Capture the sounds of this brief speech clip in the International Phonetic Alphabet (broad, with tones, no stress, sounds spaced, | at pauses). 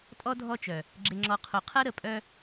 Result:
tʼ ɔ˦ dʱ ɔ˦ t͡ʃ œ˨ | ɡ͡ǁ ɪ˨ ŋ͡ǁ ɔ˨ qʰ o˨ qʰ ɐ˦ ɾ ə˨ pʼ œ˦